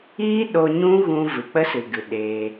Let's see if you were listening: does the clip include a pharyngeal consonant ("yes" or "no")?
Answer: no